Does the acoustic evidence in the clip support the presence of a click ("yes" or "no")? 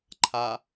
yes